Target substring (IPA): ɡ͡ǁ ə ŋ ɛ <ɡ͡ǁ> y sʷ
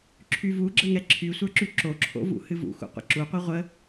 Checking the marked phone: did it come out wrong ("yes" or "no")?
yes